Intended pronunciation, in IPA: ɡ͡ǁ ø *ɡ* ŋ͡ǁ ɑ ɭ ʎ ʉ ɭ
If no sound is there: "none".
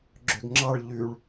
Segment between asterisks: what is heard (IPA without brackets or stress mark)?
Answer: ɡ